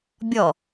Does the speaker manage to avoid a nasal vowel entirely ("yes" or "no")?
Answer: yes